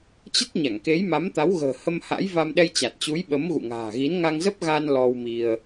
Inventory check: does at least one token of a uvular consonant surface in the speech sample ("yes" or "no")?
no